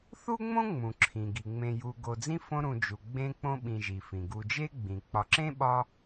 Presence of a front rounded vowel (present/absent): absent